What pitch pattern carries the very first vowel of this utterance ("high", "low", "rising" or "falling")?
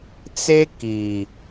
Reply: high